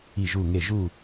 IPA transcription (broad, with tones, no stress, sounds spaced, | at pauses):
i˧˩ ʒ u˧˩ ŋ e˧˩ ʒ u˧˩